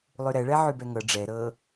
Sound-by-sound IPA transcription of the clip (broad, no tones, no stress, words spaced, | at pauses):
lˠyɾɛɭɛ ʕybɛŋɤ ɖ͡ʐɛ ɾɤ